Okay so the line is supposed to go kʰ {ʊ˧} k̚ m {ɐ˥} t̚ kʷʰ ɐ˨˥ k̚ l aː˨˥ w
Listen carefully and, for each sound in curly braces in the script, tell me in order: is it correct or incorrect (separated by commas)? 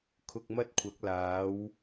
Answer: correct, correct